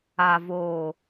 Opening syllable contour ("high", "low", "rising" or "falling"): low